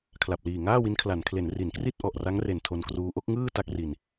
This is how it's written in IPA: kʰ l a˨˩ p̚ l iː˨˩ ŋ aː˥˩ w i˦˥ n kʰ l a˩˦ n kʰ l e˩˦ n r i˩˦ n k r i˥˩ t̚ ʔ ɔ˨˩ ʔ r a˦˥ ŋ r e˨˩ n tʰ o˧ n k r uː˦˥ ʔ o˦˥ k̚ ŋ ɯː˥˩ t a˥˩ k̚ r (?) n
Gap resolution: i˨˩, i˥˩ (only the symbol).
i˨˩